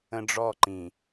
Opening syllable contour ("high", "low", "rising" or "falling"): high